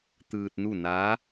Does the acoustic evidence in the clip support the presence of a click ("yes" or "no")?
no